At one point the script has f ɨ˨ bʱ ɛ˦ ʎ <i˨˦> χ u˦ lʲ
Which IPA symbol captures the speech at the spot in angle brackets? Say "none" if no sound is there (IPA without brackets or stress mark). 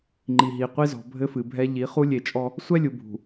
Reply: i˨˦